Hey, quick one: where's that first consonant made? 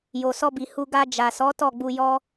palate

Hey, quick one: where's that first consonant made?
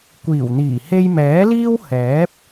velum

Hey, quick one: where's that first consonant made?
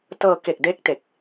tongue tip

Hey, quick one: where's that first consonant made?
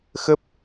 velum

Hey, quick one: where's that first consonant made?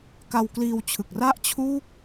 velum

